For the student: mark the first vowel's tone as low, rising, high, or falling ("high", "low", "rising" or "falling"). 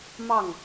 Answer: falling